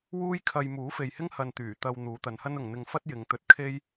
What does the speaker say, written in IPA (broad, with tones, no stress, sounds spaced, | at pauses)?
w uː˥ j kʰ ɐ˧ j m uː˨˥ f e˨ j h ɪ˥ ŋ h ɐ˧ n t̪ yː˨˩ t̪ ɐ˧ w n̪ uː˨˧ t̪ ɐ˨˧ n h ɐ˥ n ʊ˨ ŋ n̪ ɪ˧ ŋ f ɐ˥ t̚ j ɪ˨˧ ŋ t̪ ɵ˧ t̚ kʰ e˥ j